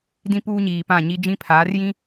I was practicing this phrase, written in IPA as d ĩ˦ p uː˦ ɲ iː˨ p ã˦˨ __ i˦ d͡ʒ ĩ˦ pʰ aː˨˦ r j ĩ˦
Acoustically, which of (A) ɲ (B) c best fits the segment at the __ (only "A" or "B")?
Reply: A